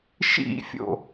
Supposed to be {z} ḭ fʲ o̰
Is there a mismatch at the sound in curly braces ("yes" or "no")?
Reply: yes